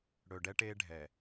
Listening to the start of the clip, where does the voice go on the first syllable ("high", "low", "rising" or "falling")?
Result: low